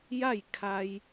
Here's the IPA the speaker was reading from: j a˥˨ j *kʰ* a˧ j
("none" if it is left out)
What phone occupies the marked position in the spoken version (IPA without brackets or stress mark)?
kʰ